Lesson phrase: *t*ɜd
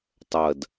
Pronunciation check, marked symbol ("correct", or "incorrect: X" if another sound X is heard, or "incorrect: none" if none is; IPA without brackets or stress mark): incorrect: tˤ